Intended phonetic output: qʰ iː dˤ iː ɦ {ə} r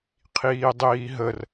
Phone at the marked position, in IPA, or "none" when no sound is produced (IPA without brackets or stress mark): ə